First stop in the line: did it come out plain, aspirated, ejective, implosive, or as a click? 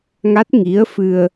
plain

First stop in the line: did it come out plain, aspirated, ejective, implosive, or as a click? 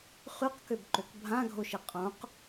plain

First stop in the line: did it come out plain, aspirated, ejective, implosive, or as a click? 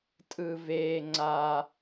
ejective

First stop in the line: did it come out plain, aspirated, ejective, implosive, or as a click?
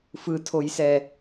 aspirated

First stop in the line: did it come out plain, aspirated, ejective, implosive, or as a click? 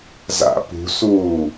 plain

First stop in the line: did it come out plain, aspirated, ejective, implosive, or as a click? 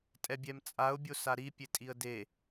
ejective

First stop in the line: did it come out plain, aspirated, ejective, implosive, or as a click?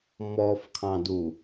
aspirated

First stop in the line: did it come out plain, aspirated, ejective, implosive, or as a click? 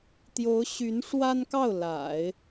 plain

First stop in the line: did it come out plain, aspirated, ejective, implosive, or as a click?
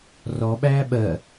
implosive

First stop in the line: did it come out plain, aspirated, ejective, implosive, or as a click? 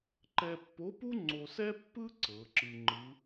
click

